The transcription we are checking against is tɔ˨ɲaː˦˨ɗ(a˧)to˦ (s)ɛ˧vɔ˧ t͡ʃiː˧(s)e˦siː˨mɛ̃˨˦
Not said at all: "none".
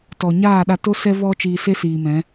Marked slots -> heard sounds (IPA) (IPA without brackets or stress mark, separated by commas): a˧, s, s